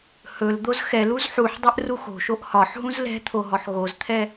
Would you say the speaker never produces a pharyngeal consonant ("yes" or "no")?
no